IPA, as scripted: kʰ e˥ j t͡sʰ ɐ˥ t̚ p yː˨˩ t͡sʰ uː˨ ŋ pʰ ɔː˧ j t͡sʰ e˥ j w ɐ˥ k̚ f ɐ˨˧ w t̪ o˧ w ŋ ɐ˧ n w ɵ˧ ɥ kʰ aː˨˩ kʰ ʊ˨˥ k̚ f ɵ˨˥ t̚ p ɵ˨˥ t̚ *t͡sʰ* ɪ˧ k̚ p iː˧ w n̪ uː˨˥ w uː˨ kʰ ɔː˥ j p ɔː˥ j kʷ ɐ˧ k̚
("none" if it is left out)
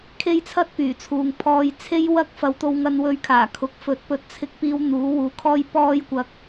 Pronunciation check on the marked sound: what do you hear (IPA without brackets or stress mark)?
t͡sʰ